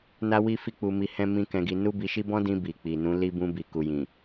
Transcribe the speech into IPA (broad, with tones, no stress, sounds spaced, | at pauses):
n a˦ w i˦ f i˦ k͡p u˧ m i˧ h ɛ̃˦ m ĩ˦ k ɛ̃˧ ɡ i˧ n u˦ b i˧ ʃ i˦ b ɔ̃˦ d ĩ˧ b i˨ k͡p i˨ n ũ˨˦ l i˧ b ũ˧ b i˨ k u˨ j ĩ˨